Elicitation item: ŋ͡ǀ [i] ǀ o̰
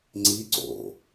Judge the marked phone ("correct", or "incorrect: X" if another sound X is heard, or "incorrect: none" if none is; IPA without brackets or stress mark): correct